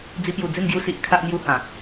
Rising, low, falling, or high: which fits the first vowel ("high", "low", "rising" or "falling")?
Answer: high